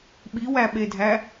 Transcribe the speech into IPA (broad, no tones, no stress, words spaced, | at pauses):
ɓiwæɓedʱæ